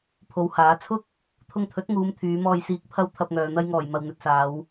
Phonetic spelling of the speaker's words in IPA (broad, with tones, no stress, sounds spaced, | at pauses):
pʰ o˨˧ w h aː˨˥ t͡sʰ ʊ˥ k̚ | t̪ʰ ʊ˧ ŋ t̪ʰ ɵ˨˥ t̚ ŋ uː˨˧ m t̪ʰ yː˨˧ m ɔː˧ j s iː˨˥ k̚ pʰ ɐ˧ w t̪ʰ ɐ˧ p̚ ŋ œː˨ n̪ ɐ˧ j ŋ ɔː˨˩ j m ɐ˨ w n̪ ɵ˧ t̚ s aː˨˧ w